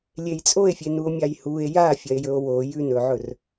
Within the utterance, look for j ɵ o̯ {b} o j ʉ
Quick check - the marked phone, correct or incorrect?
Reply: incorrect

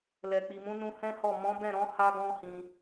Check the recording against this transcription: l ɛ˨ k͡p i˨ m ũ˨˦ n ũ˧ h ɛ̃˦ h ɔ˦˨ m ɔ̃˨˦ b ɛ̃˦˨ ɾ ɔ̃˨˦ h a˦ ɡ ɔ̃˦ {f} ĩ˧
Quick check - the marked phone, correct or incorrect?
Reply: incorrect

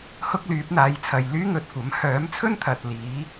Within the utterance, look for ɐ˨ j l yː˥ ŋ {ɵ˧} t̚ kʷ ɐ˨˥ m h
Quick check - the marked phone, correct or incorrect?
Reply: incorrect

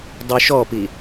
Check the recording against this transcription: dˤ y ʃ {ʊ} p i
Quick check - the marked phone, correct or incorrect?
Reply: incorrect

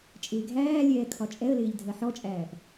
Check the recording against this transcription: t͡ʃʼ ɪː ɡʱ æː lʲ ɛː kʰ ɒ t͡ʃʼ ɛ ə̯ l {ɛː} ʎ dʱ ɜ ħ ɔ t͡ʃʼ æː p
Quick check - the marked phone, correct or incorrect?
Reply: incorrect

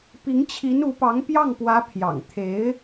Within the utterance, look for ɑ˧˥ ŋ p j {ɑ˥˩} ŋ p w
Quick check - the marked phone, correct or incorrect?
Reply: correct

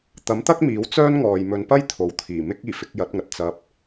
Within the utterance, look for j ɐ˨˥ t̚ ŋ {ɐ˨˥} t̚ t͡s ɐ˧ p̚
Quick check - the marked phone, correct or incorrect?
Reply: incorrect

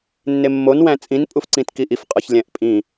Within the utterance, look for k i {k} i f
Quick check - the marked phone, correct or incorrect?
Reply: incorrect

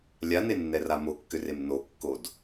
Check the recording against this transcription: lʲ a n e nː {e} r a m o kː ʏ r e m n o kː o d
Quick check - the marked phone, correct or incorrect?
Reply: incorrect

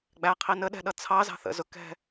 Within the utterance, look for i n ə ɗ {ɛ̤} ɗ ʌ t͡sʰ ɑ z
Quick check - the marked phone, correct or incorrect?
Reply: correct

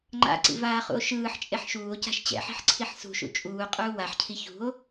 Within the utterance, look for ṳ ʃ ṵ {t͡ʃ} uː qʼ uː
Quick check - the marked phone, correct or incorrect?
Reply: incorrect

